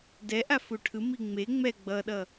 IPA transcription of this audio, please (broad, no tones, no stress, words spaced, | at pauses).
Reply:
dɛʔafu ʈʰɯmi ŋ͡me ŋ͡mɛ ɡ͡bʌɗʌ